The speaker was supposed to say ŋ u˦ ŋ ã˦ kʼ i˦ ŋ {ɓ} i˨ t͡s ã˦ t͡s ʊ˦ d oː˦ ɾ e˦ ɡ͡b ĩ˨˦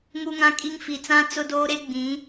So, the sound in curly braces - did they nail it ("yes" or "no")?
no